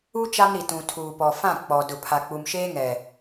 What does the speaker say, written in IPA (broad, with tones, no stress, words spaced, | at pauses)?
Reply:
u˦ t͡ʃa˦mɾi˨tũ˨ tʰuː˨pɔ˨fã˦˨ k͡pɔ˨ dʊ˨pʰa˨ k͡pu˨mʃeː˦ŋɛ˨